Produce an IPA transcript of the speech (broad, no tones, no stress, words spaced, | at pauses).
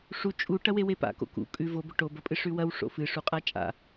ʂu t͡ʃʼu ʈɐwewepa̰ ko̰kṵ kʼʉ vobɵ ʈobɐpʼɨ ʂʉwɐw ʂo̰fɨ ʂuqʼat͡ʃʼa̰